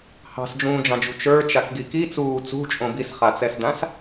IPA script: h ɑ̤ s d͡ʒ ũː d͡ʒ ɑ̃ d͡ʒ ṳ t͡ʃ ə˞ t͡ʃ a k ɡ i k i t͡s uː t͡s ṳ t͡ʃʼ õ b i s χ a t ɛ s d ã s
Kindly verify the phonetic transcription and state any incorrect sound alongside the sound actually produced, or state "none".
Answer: t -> t͡s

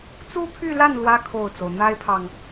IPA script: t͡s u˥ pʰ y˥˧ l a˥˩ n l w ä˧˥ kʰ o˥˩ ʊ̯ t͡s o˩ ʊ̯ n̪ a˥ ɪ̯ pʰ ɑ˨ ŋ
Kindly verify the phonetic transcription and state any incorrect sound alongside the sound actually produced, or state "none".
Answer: none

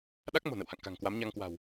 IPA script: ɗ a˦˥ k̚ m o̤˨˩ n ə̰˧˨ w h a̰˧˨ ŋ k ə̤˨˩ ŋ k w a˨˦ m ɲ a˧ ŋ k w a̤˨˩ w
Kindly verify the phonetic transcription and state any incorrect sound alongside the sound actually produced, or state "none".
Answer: ə̤˨˩ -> a̤˨˩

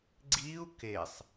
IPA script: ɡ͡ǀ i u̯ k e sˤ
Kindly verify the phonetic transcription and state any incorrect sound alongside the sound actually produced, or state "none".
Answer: none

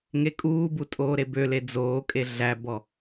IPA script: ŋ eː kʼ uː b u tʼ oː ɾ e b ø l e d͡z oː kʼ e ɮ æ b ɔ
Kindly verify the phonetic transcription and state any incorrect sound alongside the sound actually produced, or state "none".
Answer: eː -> e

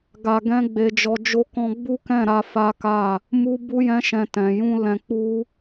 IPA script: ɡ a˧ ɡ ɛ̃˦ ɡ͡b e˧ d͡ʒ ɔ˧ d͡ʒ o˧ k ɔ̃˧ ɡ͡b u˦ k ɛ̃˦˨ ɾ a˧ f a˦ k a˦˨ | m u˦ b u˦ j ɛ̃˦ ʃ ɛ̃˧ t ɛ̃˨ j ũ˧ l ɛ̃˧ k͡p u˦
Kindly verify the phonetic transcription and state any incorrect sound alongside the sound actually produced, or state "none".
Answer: none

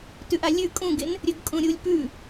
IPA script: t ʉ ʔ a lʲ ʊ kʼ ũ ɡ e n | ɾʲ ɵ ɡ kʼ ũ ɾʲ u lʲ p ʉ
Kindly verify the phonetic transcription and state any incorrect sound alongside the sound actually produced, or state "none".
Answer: ʊ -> ʉ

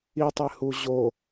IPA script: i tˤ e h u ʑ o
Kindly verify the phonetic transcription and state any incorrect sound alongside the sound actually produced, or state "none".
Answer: none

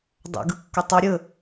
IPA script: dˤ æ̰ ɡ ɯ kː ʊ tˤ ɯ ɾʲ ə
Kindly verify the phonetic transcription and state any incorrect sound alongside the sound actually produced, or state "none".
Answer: none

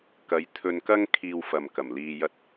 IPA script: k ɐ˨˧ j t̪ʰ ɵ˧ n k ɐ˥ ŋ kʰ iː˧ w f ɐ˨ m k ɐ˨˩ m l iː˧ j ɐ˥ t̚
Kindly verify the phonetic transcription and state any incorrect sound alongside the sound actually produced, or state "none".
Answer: none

